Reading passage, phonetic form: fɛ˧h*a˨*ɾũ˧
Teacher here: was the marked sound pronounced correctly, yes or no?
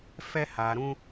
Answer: yes